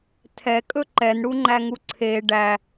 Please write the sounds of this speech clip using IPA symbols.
tʰ ɛ kʼ ɵ ǃ ɛ n ɽ u ŋ͡ǃ æ ŋ u ǀʰ e ɖ æ

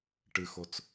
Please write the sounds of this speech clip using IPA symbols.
ʈ ɨ x o t͡s

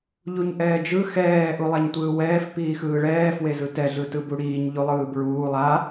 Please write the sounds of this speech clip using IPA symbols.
ʎ u ɲ ʔ ɛː d͡ʒ ɯ x ɛː ʔ u lˠ a ɲ tʷ ɯː w ɛː f p iː x ɯː ɭ ɛː f w e z ɯ t ɛ ɮ ɯ t ɯ b u ɽ iː ɲ ʎ u lˠ ɯː b ɹ uː lˠ a

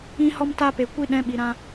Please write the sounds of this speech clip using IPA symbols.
ĩ˧ h ɔ˧ m t a˧ p e˨ kʷ i˧ ɗ ɛ̃˨˦ ɓ i˨ ɾ ã˧

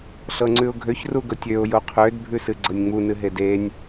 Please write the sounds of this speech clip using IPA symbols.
ɬ ɤ ŋ͡ǀ ʉ ʊ̯ ɡʱ ø ç r u ɡ ɤ tʲ ø ʊ̯ j o qʰ ø d bʱ ʉ s ɨ ɡ͡ǀ ɤ nʲ ŋ͡m u n ɨ ɦ e d e nʲ

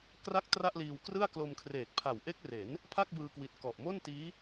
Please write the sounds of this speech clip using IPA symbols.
k r a˥˩ k̚ t r a˥˩ ʔ l iː˧ w k r ɯ˥˩ a̯ k l o˧ m kʰ r eː˨˩ k̚ pʰ a˨˩ w ʔ e˦˥ k̚ r e˩˦ n | pʰ a˥˩ k̚ b ɯː˧ k w i˨˩ t̚ k ɔ˨˩ ʔ m o˥˩ n t iː˦˥

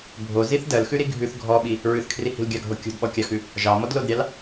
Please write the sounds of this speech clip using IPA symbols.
bʱ o z i θ d ɜ l x ʉ ɾ i ɡʱ ʉ θ ɡʱ ɔ ɓ i | ɹ ʉ θ kʰ r i h i̤ l ɡʲ ɑ ɡʱ o kʲ o̤ d ɓ ɔ kʲ ɑ x ʉ | ʒ ɑ m ɔ d l o d ɾʲ ɑ l

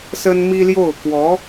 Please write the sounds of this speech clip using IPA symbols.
s ə˥ n m i˥ l j o˥˩ ʊ̯ k w ɔ˧˥

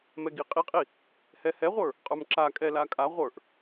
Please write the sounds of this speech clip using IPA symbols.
m ɛ ɡ i qʼ i qʼ i | h ɛ h ɛ ʁʷ ə˞ | qʼ ə˞ m ǁ a kʼ ɛ l a kʼ a ʁʷ ə˞ ʔ

